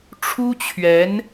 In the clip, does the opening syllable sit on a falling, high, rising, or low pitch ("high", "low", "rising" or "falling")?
high